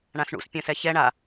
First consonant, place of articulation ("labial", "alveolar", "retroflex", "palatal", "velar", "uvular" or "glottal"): retroflex